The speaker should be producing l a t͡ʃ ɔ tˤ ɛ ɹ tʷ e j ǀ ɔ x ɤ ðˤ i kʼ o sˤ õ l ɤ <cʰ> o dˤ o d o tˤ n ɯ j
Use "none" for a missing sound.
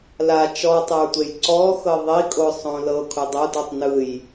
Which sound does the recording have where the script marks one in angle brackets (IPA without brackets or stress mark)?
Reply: kʰ